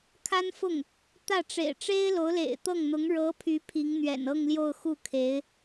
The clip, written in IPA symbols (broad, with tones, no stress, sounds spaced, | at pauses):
kʰ a˥ n f ʊ˥˩ ŋ | t̪ ä˥˩ ʈ͡ʂ ḛ˨˩ ɪ̯ ʈ͡ʂ e˥ ɪ̯ l o˧˥ ʊ̯ l ḛ˨˩ ɪ̯ t̪ ɤ˥˩ ŋ n̪ ʊ˧˥ ŋ ɻ ɤ˧˥ pʰ y˧˥ pʰ i˧˥ ŋ n̪ ɥ ɛ̰˨˩ n ɤ˥˧ ŋ l j o˥˧ ʊ̯ x u˥˩ kʰ e˧˥ ɪ̯